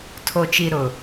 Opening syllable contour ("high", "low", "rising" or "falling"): low